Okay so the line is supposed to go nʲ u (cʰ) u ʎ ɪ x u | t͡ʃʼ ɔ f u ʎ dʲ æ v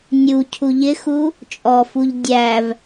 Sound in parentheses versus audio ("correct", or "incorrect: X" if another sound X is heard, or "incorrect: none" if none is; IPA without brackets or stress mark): correct